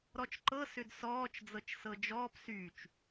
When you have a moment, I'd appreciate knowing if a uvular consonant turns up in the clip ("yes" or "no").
no